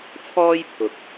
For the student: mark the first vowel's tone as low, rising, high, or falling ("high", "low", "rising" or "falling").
high